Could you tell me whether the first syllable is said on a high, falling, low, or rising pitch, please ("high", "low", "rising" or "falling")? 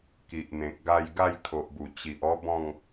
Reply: low